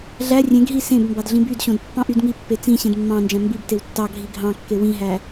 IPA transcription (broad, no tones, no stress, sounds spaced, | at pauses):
ɮ æ rʲ ẽ ɡ ɦ i s ẽ b m b ɑ d ɮ ĩ b y d ɕ õ d pː ɑ̃ ʔ y d ŋ i pː e t͡s ĩ ɕ ẽ d mː ɑ̃ n d͡ʒ æ̃ m b i b t e w tː ɑ ɡʱ i ɡʱ ɑ̃ kː e w ĩ ɦ æ